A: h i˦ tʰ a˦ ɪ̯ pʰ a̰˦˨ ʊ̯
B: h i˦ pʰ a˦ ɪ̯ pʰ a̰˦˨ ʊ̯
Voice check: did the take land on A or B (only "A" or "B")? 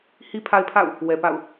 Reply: B